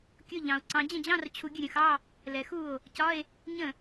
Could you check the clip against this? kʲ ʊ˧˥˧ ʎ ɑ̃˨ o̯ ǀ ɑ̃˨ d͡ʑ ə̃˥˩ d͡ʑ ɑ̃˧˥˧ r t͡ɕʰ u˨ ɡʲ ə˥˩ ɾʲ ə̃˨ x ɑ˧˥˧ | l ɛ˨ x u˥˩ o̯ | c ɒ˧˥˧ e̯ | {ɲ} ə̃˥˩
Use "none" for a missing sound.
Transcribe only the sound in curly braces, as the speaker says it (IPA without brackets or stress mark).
ɲ